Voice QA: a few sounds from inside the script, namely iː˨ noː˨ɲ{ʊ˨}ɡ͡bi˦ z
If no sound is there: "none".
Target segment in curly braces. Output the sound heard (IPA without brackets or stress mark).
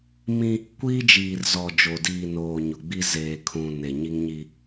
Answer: ʊ˨